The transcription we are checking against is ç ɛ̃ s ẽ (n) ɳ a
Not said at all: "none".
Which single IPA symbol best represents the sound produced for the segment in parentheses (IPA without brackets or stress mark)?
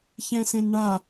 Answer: n